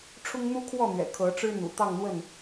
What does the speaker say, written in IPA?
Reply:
ʈ͡ʂʰ ʊ˦ ŋ n̪ u˦ kʰ w ɔ˥˨ n̪ ɥ ɛ̰˨˩ kʰ ɤ˨˦ ʈ͡ʂ ɻ̩˦ n̪ ṵ˨˩ t̪ ɑ˥˨ ŋ n̪ w ə˥˨ n

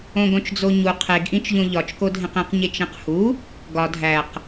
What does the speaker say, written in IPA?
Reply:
õ ɡ õ t͡ʃ d͡z o ɲ u qʰ e ɡ ʔ ĩ t͡ʃ ʎ õ ʎ ɒ t͡ʃ k o dʱ ẽ q ĩ q ɲ e t͡ʃ ẽ q h u | ɡ ɒ dʱ æ q

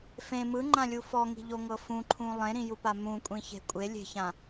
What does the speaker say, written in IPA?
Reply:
f ẽ m ɯ ŋ͡ǃ ã lʲ u f ɔ ŋ i̤ ʎ o ŋ ɤ f ũ ǃʰ ũ lˠ ẽ ɾ ĩ j u p a m ũ kʷʼ ĩ ç e̤ kʷʼ e lʲ e̤ ç ã

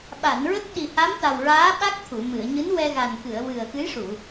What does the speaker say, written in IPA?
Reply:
ɓ a˨˩˨ n ɹ ə˦˥ k̚ ɗ i˨˩ h a˧˥ m t̪ a˨˩ w ɹ aː˧˥ ɓ a˦˥ k̚ t̪ʰ u˨˩˨ m ɨ˨˩˨ ə̯ ɲ ɨ˧˥ n w ɛ˧ ɣ a˨˩ n k ɨ˨˩˨ ə̯ w ɨ˨˩ ə̯ x ɨ˧˥ j ʂ u˨˩˨

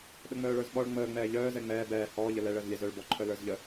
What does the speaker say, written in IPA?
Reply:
ɗ ə ŋ͡m œː ɭ ə˞ z ɓ ɔ ɭ ŋ͡m əː ŋ͡m ɛː ʎ œː z ɛ ŋ͡m ɛː b ɛː h ɔː ʎ ə l ɛ ɭ əː z lʲ ɛ z œ ɭ b ɔ ǃʰ œ l ə˞ z ʎ ə

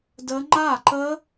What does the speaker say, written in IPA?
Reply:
d ə˦˥ ŋ͡ǃ a˥˩ ǃ ə˦˥

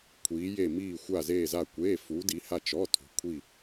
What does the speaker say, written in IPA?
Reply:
kʷʰ iː˩˧ j e˧˩ m iː˧˩ xʷ a˧˩ z eː˧˩ z a˧˩ kʷ eː˩˧˩ f uː˩˧ d i˩˧ h a˧˩ t͡ʃ ɔ˩˧˩ tʰ ṳ˩˧ kʷʰ i˧˩

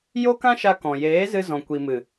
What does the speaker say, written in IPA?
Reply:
j o˦ k ã˦ ʃ a˧ k ɔ̃˨ j eː˨˦ z ɨ˧ z ɔ̃˨ kʷ i˨ m ɨ˨

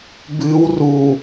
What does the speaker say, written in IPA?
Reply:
b ɨ w r u

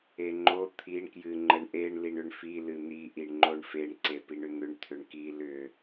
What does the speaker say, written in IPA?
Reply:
e ŋ͡ǃ o t̪ʰ i ɳ k j ɨ ŋ͡ǃ ə ɳ ʔ e ɳ l i ɳ ʏ ɳ f i l ɨ n̪ i ʔ i ɳ ŋ͡ǃ o ɳ f e ɳ ǀ e p i ɳ ʏ n̪ ʏ ɳ t̪ʰ ʏ ɳ k i l ʏ

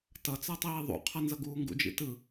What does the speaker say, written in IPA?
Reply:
t ʌ t͡s ʌ tˤ iː ðˤ ṵ qʰ ʌ n z ʌ ɡ uː ŋ ɡ ṵ d͡ʒ ḭ t ɯ

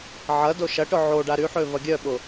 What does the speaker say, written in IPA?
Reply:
ʕ ɐ d o ʃ ɐ ʈ ʊ ʕ o ɖ a ɾ y ħ ø v ɐ ɡʲ œ ɓ ʊ

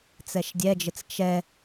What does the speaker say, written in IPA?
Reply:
t͡s ɛ ʃ dʲ ɛ d͡ʒ ɘ t͡s t͡ʃ ɛ

